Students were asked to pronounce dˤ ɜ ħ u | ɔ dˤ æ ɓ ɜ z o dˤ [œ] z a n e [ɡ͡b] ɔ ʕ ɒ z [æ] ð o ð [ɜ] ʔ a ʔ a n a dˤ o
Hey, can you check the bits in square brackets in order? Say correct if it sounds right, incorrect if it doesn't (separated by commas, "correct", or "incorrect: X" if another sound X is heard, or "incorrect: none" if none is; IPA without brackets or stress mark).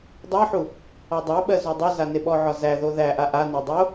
correct, incorrect: ɓ, correct, incorrect: æ